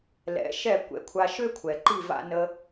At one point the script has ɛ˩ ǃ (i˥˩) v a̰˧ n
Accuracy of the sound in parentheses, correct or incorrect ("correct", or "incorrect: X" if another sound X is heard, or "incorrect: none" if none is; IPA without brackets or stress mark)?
correct